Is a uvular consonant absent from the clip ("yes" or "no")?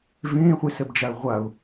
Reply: no